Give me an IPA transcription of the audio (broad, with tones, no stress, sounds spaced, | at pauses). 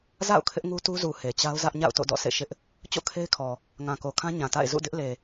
z a̰˦˨ ʊ̯ kʰ ɪ˦ ʔ ŋ u˦ t u˦ z u˨ h e˨ t͡ɕ a˦ ʊ̯ z ä˦ ʔ ɲ a̰˦˨ ʊ̯ t o̰˦˨ d ɔ̰˦˨ s ḛ˦˨ ʃ ɪ˦ ʔ | t͡ɕ o̰˦˨ kʰ e˦ ɪ̯ kʰ ɔ˨ | ŋ ã˨ k o˨ kʰ ã˦ ɲ ã˨ t a̰˦˨ ɪ̯ z ṵ˦˨ d ɪ˦ ʔ l e˨